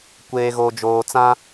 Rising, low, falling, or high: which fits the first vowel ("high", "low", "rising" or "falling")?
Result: low